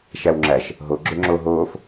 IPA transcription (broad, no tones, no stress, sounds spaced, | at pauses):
ʃ æ w ŋ͡ǁ æ ʃ | ɦ o ɡ͡ǁ ø ŋ͡ǁ o ɦ oː f